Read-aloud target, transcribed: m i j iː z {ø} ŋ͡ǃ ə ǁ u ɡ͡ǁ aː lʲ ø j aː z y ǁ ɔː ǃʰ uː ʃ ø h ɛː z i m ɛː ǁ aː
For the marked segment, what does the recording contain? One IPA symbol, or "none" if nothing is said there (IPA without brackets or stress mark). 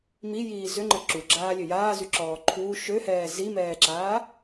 ø